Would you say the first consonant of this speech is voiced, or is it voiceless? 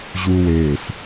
voiced